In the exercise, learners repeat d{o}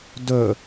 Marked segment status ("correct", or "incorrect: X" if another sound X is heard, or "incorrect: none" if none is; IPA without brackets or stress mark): incorrect: ɵ